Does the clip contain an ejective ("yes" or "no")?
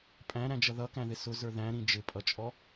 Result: yes